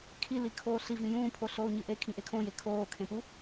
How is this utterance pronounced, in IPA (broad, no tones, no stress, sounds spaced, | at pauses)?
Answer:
kʰ i l i kʰ oː ɬ i v ĩ j ũː pʰ o ɬ oː ɲ ɨ ʔ e kʰ ĩ ʔ e kʰ õ j e kʰ oː kʰ ẽ p u